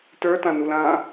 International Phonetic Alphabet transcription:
t ə˞ t ã n u l ã

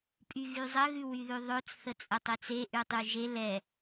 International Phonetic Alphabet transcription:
pʼ y ɣ y zˤ ə ɣ ʉ w y ð ʉ ðˤ ɵ t͡s θ ə t͡sʼ ə tˤ e t͡s e ʔ ʉ tˤ y ʒ e l ɛ

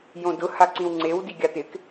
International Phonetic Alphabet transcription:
j õ d ʊ h a ǀ ĩ w ŋ͡ǀ e w d i ɡʲ a t̪ ɪ k

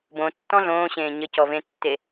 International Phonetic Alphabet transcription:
b õ tː ɔ̃ ɮ õː ɕ ẽː ɲ ə c ɔ v ẽ tː e

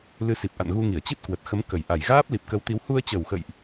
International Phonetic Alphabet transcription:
l ɨ˨˦ s i˨˩ p̚ ʔ a̰˧˨ n ɣ u˧ ŋ i˧˩ ə̯ t͡ɕ i˦˥ t̚ k w ə˨˩ t̚ x ə˨˦ m k ə˨˩ j ʔ a˨˩ j ɣ aː˦˥ p̚ l i˨˩ p̚ k ə˨˦ w t̪ i˨˦ w h u˧ ə̯ t͡ɕ ə˨˩ w x ə̰˧˨ j ʔ

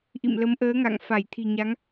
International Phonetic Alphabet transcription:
ʔ ḭ˧˨ m l ə˨˦ m ʔ əː˨˦ ŋ a̰˧˨ ŋ f a˧˩ j t̪ʰ i̤˨˩ ɲ a˨˦ ŋ

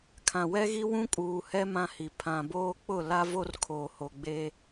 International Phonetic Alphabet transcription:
kʰ ã˨ w ɛ˦ ɣ i˦ w ũ˦ kʼ uː˨ h ɛ˦ m ã˦ h i˨ pʰ ã˨ b oː˦ k͡p ʊ˦˨ l a˦ v o˦ r kʰ oː˨ h o˨ ɡ͡b e˦

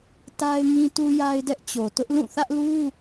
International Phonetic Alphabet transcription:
t a˦ ɪ̯ ŋ ĩ˦ t u˦ j a˦ ɪ̯ d ɛ˦ ʔ t͡ɕ o˨ t ʊ˦ ʔ l ũ˦˨ θ ä˦ ʔ l u˦

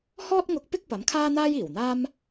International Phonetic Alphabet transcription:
h ɔː˥ t̚ ŋ ʊ˧ k̚ p ɪ˥ k̚ p ɐ˨˥ m kʰ aː˥ n̪ aː˥ j iː˨˩ w n̪ aː˥ m

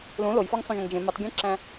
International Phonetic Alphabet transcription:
l ũ l o j f ɒ ŋ sˤ ũ ʒ õ ŋ d͡ʒ ẽ m u tˤ ɡʲ ẽ ǁ æ̃

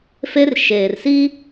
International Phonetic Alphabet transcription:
f e˦ r ʃ eː˨ r s i˦

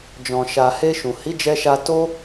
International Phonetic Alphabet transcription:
d͡ʒ ɔ̃˨ ʃ a˨ h e˧ ʃ ũ˨ h i˨˦ d͡ʒ ɛ˧ ʃ a˧ t o˧

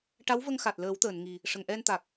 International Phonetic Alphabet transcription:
ʈ a˧˥ w v ə˧ ŋ x a˨˩ t̚ l əː˨˩˦ w t̪ əː˨˩˨ n ŋ i˨˩ | ʂ ə˨˩˨ ŋ ʔ ɛ˧ n t̪ a˨˩ k̚

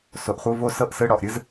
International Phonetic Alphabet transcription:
s o˨ ʔ χʷ ɯ˧˥˧ v o˦˥ s ɤ˦˥ ʔ s ɯ˧˥˧ ɽ ɔ˨ ʔ ɾʲ ɯ˦˥ z

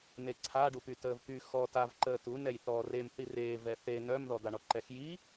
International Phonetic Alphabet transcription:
n e ǀʰ a ɖ u p y t əː v p y x ɔː t a v ǃ əː t u n ɛ j θ ɔː r e m θ i r eː v ɛ θ e n œ m ð ɔ d̪ a ɳ ɔ ǃ ɛ x j i

